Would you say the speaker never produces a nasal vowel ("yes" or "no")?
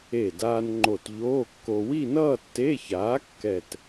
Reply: yes